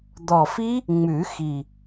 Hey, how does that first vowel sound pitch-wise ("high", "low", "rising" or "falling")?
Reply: low